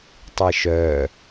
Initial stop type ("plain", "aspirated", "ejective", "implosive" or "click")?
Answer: plain